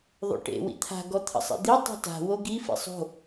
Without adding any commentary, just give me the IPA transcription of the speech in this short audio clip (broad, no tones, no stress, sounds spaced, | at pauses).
ðˤ o̰ ʈ ḛ w ḭ t̪ʰ a̤ ɡ ɔ t̪ʰ ə̰ sˤ ḛ d̪ i tˤ o̤ t a̤ w o ɡ i f ḭ sˤ o̤